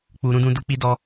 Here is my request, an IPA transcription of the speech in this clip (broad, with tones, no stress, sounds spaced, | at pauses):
k͡p u˨ ɾ ũ˧ d ũ˧ d u˧ k͡p i˧ d ɔ˧